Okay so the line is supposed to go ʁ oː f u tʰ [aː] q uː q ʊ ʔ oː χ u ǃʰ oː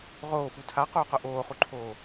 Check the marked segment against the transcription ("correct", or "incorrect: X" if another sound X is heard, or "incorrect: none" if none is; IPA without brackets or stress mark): incorrect: a